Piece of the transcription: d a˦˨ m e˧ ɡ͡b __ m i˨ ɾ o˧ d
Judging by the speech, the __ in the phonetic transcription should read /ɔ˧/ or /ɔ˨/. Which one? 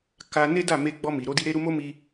ɔ˧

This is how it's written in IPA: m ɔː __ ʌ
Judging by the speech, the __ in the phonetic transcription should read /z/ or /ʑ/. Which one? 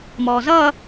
z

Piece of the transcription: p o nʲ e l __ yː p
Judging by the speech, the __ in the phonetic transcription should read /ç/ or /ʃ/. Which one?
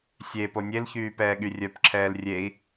ç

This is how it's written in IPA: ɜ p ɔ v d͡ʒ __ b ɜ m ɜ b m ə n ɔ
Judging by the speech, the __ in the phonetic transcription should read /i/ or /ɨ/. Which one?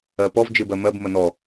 ɨ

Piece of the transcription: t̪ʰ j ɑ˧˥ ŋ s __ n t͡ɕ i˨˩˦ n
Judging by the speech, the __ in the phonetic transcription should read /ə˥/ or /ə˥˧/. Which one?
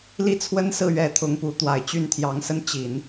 ə˥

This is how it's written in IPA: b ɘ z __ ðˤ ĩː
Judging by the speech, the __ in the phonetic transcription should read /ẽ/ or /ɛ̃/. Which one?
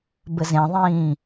ẽ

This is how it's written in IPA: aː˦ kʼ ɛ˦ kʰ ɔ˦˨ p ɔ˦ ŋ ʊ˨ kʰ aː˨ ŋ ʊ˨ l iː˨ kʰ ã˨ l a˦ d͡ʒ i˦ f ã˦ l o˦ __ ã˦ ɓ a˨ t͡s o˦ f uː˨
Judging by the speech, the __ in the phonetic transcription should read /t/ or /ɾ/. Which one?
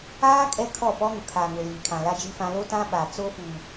t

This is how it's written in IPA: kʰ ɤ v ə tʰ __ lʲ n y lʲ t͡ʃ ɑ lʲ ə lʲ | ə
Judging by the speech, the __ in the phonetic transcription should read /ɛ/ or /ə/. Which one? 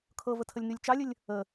ə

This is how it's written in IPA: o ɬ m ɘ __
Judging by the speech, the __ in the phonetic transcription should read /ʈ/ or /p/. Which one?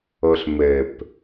p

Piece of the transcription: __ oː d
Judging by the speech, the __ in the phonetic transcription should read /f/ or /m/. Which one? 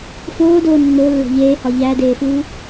f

